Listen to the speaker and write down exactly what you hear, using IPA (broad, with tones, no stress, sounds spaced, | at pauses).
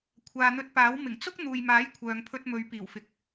kʷʰ aː˨ n̪ ɵ˧ t̚ p aː˨˥ w m ɪ˨˩ ŋ t͡s ʊ˥ k̚ n̪ uː˨ j m aː˨˥ j kʷʰ œː˨ ŋ pʰ ɵ˧ t̚ m ɵ˨˧ ɥ p iː˨˩ w f ɪ˨ k̚